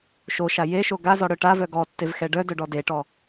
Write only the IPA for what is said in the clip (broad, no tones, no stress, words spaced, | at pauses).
ʃoʃa jeʃo ɡazɔɽœ ʈavœ ɡɔtːevxɛ ɖœdœɖɔ deʈɔ